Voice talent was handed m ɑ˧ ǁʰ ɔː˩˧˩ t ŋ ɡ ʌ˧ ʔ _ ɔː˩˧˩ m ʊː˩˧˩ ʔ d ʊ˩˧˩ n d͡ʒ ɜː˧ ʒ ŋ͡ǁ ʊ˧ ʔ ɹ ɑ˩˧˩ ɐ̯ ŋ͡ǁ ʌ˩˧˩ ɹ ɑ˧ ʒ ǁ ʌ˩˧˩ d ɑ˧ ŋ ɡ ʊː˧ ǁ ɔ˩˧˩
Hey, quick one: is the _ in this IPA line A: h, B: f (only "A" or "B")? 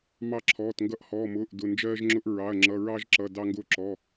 A